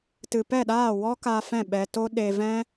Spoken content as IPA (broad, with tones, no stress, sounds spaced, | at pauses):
t ɨ˨ p ɛ˦˨ ɗ aː˦˨ w ɔ˦ k a˧ f ɛ̃˦˨ ɓ ɛ˧ t o˦ ɗ e˧ v ɛ̃˦